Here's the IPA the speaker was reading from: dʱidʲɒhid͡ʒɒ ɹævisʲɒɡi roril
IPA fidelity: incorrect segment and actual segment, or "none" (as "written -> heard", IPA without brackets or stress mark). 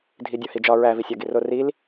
none